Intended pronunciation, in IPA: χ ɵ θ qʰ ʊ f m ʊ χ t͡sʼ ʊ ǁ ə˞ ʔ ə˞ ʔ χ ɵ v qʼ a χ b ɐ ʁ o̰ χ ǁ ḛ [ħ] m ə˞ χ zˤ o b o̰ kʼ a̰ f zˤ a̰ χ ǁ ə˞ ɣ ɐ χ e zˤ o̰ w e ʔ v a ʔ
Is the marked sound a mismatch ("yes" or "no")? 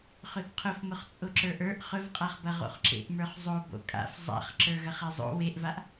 yes